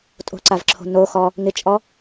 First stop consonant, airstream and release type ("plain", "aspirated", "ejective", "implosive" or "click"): ejective